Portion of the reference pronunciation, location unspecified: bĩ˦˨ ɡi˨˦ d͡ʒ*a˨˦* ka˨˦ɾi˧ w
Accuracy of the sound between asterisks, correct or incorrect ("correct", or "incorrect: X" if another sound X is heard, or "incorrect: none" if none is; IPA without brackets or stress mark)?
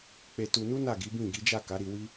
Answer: incorrect: a˦˨